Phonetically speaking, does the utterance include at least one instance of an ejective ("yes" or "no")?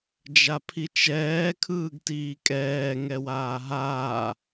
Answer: yes